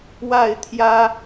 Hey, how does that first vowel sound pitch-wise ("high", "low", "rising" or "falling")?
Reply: falling